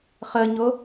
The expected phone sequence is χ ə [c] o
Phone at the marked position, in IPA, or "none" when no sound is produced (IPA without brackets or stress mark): ɲ